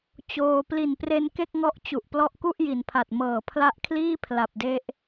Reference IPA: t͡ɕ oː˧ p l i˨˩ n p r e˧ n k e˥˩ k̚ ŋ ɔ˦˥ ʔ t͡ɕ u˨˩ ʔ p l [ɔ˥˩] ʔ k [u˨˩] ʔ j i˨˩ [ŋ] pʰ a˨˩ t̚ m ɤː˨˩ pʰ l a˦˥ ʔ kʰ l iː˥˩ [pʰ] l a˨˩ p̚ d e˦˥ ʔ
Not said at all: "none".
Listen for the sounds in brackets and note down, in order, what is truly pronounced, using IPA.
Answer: ɔ˦˥, u˥˩, n, pʰ

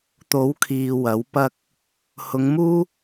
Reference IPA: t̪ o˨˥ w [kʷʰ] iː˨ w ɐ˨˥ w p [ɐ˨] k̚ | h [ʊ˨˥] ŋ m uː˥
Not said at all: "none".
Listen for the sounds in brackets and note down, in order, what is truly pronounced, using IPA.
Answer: kʰ, ɐ˥, ʊ˨˧

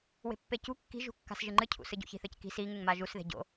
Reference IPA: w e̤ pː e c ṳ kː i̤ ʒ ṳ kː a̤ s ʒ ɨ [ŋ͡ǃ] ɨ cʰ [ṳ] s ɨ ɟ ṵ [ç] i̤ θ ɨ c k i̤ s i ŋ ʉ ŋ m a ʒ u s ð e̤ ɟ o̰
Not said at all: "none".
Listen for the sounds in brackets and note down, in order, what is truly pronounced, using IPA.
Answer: ŋ͡ǃ, ṵ, ç

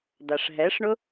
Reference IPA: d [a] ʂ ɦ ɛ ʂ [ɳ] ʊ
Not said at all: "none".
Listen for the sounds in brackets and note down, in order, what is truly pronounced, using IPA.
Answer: a, ɳ

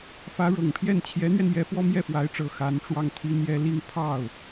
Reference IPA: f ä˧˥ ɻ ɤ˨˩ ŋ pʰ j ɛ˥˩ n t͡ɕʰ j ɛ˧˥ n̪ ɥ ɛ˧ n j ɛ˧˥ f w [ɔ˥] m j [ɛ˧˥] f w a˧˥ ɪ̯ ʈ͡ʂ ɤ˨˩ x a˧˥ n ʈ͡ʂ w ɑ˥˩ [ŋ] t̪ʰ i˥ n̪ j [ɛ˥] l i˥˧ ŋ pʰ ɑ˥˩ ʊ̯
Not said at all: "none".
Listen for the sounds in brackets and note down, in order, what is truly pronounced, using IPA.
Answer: ɔ˥, ɛ˥˩, ŋ, ɛ˥

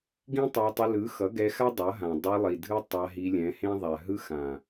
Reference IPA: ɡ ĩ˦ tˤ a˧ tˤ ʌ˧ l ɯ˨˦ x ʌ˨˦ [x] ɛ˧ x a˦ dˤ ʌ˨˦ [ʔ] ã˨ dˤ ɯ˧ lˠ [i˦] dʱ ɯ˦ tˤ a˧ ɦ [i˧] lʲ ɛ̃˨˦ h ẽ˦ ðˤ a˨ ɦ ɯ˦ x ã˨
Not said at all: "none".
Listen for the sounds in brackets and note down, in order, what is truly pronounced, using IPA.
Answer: ɡ, ɦ, i˨, i˧

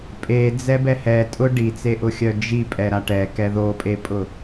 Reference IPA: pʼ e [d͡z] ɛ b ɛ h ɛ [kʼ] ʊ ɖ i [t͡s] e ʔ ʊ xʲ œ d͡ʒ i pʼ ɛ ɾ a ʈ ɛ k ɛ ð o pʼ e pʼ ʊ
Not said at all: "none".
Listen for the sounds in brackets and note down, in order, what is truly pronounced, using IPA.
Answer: d͡z, tʼ, t͡s

